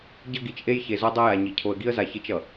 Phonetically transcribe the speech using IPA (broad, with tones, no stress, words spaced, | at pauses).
ɟʌ˦ɡi˨t͡ʃʔe˦j çe˨zo˦ dˤɛ˦ja˨ɲi˨ cʰo˨ə̯ɡi˦ə̯za˨ çi˦t͡ʃʌ˨